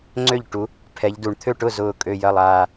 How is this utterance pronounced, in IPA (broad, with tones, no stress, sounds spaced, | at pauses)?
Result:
ŋ͡ǀ ø˥˩ ʎ ʈ u˨˦ | pʰ ɛ˨˦ ʎ d u˨˩ ɳ t̪ʰ ø˥˩ ʈ ʊ˥˩ z ʊː˨˩ kʼ ø˨˩ j ɐ˨˩ lˠ aː˨˩